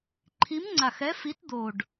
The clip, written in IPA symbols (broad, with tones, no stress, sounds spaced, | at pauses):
ǃʰ i˨˥ m ŋ͡ǀ a˨˩ x ɛ˨˥ f i˨˥ t d̪ o˨˩ ɖ